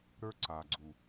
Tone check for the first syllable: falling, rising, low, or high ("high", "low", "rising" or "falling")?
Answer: high